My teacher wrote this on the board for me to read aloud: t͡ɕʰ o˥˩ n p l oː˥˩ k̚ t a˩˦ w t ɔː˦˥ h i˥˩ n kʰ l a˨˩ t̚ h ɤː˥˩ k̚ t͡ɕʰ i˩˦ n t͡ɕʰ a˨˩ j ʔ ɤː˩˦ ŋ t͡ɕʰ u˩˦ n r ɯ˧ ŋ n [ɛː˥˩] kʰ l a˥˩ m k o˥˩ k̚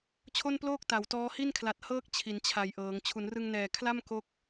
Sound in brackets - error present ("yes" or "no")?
yes